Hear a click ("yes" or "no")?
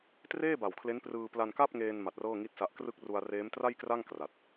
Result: no